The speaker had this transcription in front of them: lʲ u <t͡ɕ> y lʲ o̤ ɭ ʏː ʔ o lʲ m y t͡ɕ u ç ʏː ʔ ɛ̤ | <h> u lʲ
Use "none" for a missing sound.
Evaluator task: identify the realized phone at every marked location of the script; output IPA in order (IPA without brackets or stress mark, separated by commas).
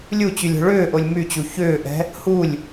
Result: t͡ɕ, h